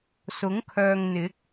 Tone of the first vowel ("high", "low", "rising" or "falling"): rising